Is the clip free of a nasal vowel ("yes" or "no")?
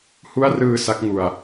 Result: yes